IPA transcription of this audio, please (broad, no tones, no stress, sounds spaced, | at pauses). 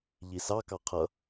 ʎ i s ɑ k ɑ qʰ ʌ